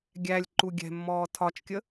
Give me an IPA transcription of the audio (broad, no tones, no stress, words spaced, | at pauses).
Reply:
ɡʲælʲ ǃuɡʲɛ̤mːɔː tʰɒt͡ʃkʲə